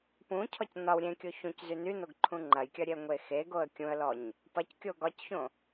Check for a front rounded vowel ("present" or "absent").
present